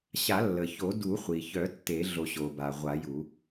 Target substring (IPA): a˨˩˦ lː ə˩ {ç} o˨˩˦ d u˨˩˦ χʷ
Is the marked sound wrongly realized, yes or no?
no